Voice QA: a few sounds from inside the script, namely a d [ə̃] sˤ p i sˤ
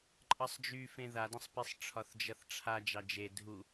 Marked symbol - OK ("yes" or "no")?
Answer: yes